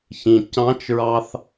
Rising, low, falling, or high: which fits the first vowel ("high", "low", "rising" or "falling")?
low